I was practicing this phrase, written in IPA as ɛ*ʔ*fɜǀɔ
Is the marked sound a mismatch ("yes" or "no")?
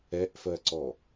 no